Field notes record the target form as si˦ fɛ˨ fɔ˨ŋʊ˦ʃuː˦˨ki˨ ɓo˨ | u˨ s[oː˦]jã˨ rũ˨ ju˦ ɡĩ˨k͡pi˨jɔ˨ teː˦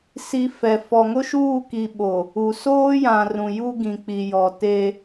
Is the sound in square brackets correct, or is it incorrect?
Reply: correct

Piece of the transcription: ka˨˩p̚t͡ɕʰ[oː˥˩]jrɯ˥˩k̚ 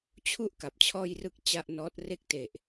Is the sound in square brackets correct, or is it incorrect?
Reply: incorrect: ɔː˥˩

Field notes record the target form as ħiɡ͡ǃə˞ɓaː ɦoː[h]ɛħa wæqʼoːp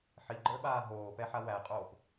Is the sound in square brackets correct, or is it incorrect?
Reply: incorrect: p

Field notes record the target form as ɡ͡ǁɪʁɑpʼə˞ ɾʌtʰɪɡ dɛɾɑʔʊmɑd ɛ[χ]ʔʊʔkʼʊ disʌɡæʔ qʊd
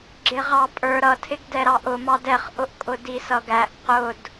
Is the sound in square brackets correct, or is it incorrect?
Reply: correct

